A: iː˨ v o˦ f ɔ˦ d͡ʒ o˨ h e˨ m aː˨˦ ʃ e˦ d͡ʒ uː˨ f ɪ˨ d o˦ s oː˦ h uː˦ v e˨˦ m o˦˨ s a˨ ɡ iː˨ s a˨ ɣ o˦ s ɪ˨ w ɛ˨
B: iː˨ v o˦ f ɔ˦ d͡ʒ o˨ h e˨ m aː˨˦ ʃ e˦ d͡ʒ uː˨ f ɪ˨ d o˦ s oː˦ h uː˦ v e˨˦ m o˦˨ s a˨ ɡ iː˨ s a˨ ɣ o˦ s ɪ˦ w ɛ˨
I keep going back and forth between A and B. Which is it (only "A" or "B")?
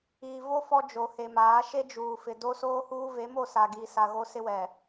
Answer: B